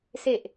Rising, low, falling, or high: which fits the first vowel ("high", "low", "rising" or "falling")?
low